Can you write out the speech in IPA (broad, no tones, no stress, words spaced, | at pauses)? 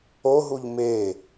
oɦuʎ me